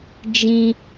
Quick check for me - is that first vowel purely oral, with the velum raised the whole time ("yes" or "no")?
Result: no